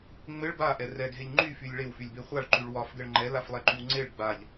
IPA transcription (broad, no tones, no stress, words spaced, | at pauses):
ŋ͡mɘɭ baʔɛ rɛɡʱeʎ ŋ͡ǃyfylʲ ɭewfylʲbe χʷaɭǃyɭ wɒfɡɘɭ ŋ͡ǃɛlaflˠɛǃyw ŋ͡ǀeɭ ɡ͡baʎ